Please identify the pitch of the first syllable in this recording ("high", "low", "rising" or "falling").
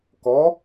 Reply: rising